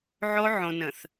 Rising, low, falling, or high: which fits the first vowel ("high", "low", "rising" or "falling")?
high